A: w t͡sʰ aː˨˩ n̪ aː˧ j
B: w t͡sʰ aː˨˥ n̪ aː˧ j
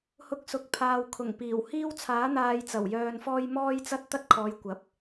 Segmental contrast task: B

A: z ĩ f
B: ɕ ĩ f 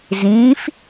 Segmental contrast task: A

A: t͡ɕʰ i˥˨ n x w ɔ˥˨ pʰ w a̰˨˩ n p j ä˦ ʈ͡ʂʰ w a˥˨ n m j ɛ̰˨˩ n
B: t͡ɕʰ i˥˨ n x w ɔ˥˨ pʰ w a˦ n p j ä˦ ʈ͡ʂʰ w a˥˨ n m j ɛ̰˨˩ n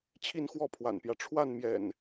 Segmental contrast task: A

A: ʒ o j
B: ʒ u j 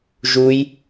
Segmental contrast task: B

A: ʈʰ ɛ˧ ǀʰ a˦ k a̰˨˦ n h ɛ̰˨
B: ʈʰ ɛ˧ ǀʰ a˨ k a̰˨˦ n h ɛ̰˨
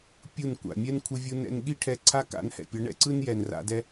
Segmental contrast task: A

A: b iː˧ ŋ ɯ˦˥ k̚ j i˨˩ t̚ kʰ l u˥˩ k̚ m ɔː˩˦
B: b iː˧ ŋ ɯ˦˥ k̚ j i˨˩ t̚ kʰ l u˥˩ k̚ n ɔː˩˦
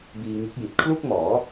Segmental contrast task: A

